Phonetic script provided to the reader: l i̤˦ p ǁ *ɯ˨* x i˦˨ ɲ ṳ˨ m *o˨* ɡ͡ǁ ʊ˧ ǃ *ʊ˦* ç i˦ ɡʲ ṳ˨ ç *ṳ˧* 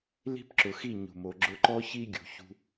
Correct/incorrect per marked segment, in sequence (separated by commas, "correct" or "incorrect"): incorrect, correct, incorrect, correct